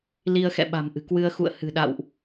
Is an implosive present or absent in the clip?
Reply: present